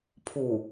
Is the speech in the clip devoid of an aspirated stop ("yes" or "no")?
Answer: no